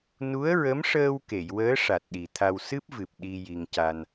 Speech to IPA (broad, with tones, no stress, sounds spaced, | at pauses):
n u˧˥ ə̯ ɹ ə˧˥ m ʂ əː˧ w k e˨˩˨ j w əː˧˥ ʂ a˨˩ t̚ ɗ i˨˩ t̪ʰ a˧ w s ɨ˦˥ p̚ v ɨ˨˩ p̚ ɗ i˧ j i˧ ŋ c a˧ n